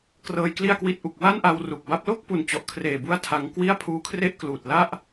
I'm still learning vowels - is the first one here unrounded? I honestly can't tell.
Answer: yes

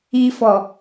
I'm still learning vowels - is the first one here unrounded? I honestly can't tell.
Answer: yes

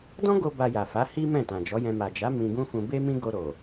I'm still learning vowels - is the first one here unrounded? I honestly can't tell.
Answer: no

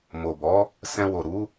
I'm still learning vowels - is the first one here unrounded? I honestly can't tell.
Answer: no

